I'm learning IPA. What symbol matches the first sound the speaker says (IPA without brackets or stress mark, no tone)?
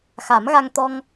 x